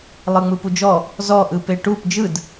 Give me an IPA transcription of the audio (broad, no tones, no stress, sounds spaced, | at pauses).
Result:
lˠ ɯ ŋ͡m ɯ p u d͡ʒ ɔ | z ɔ ʔ ɯ p e ʈ u p d͡ʒ ɯ d